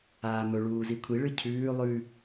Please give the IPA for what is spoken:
aːmɵ ɭuːzikʷʰi ɭɨcʰʉː lˠʉ

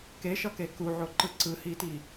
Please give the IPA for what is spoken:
keʃʌke kuʕoǃɯ ǀɯhiti

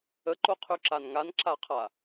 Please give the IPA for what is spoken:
əǃoqʰyǁan ŋanǁaqʰa

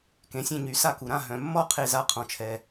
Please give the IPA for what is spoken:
kẽ˩sʲẽ˧˩ɲy˩ sa˧˩ku˩ɾã˧˩ ɦœ̃˩mːɔ˧˩ qʰe˩za˩ qʰɔ̃˩t͡ʃʰɛ˩

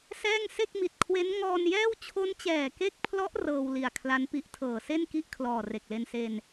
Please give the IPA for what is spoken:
sɛː˥˩ŋ se˥˩k̚mi˨˩t̚kʰwe˦˥n ŋɔː˧njɛː˥˩w t͡ɕʰo˦˥nt͡ɕɛː˨˩ke˦˥k̚pʰlɔ˦˥ʔ rɤː˧wli˨˩a̯kʰla˦˥npi˦˥ʔ tʰɤː˨˩se˥˩nki˥˩ʔ kʰlɔː˨˩re˨˩k̚le˧nse˧n

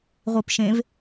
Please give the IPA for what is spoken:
ʁʷipʃẽv

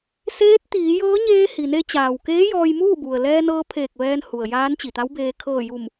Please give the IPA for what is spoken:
seː˧˥t̚ t̪iː˩˧jɤː˧˥ɲeː˧ hi˩ne˧t͡ɕaː˩wkeː˧˥ jɔː˧jmuː˥˨bu˩ə̯ lɛː˧nɤː˧pʰeː˧˩k̚ ʋɛː˧nhu˩ə̯ jaː˧˥nt͡ɕi˩t̪a˧˥wbeː˧ kʰɤː˧˩ju˧˩m

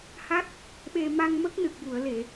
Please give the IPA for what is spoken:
ha˦˥t̚ | ɓe˧ ma˧ŋmə˦˥k̚nɨ˨˩k̚ ju˨˩˨ə̯le˨˩˨

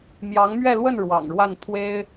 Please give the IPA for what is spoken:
mjɑ˧˥ŋmɥɛ˥˧lwə˥˩n ɻwɑ̰˨˩ŋɻwa˥˩npʰwe˥ɪ̯

